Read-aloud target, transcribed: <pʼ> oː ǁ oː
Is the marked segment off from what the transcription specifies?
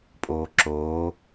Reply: no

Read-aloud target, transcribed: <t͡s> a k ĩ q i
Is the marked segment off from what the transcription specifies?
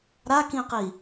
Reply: yes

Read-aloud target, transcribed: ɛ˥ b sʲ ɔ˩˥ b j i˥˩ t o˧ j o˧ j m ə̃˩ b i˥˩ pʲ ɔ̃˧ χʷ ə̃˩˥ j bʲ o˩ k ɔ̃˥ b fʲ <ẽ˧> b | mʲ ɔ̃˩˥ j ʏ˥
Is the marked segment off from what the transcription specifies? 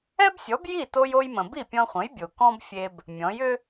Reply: yes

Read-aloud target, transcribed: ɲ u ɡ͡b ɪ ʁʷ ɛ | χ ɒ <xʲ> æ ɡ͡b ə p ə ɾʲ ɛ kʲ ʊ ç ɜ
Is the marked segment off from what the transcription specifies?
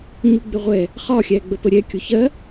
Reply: no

